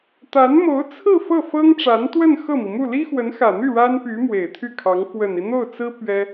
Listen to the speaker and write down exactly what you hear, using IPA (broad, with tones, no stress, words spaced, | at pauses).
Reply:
t̪a˧˥nmo˧˥ʊ̯t͡sʰɹ̩˥˧ fɤ˥˩fɤ˥ŋʈ͡ʂa˧˥nt̪wə˥˧n xɤ˥˩mi˩mu˥˩ li˥xwə˧˥nxä˨˩n̪y˥˩ ɻa˥npy˧˥ mwe˨˩ɪ̯t̪ʰy˥˩kʰɑ˧˥ŋ fwə˨˩ni˦n̪o˥˩ʊ̯t͡sɹ̩˥ pɥɛ˥